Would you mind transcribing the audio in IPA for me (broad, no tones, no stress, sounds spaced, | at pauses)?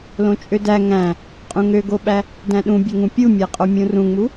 l õ t͡ʃʼ ø d æ ŋ æ̃ | qʼ ũ ŋ ø ɡ o ɓ æ | d æ̃ ɗ ũ bʲ ø ŋ ũ pʲ u mʲ æ qʼ o mʲ ũ r ũ ŋ͡m u